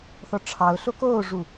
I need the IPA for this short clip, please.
θ ɔ ʈ͡ʂʰ ɑ ʊ̯ ɬ o k oː ʐ u

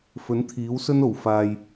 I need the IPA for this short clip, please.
f ɵ˨˥ n t̪ʰ iː˨˥ w s ɵ˥ n o˨˩ w f aː˨ j

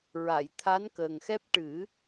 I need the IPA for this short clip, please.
ɹ a˨˩˨ j t̪ʰ a˧˥ n k əː˨˩ ŋ x ɛ˦˥ p̚ ʈ ɨ˨˩˦

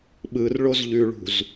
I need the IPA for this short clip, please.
ɓ ɯ r ɭ o z ʎ ʉ ɭ ṳ z

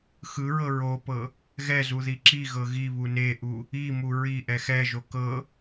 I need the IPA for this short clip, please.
x ɯ ɹ ɤ ɹ o p ɤ | ɣ ɛ z u ð i ǁ i ɣ ɤ ɣ i β u n e ʔ u | i m u ɹ i ʔ ɛ x ɛ ʒ o k ɤ

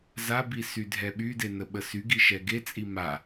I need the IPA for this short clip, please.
z a b i s y dʱ ɛ ɓ y d e n ə ɓ ə s y ɡ i ʃ ɛ ɡ e t͡sʼ i m a

